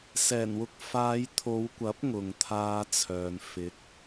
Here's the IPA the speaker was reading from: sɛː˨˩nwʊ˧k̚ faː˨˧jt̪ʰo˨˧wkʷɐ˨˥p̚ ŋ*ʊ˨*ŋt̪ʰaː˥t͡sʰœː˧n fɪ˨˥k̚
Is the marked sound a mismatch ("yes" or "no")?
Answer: no